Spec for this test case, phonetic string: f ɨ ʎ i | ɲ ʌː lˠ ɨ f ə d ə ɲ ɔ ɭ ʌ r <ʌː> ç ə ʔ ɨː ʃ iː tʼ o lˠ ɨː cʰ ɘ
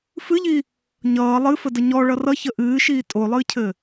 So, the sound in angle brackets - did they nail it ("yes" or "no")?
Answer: no